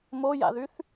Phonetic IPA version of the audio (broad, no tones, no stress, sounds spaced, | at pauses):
m o j a̰ ð y θ